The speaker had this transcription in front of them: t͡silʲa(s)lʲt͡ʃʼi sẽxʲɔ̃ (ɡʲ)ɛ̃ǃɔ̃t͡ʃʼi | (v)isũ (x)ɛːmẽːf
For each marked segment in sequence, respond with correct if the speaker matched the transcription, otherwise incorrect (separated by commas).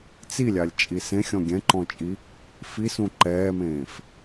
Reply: incorrect, correct, incorrect, incorrect